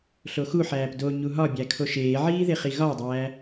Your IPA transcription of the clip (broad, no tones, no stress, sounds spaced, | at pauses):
ɬ o x u ħ æː p d o ɲ u ɦ ɒ bʲ æ kʰ o ʃ eː ʕ iː ð e χ i ɣ ɒ ʊ̯ dˤ æː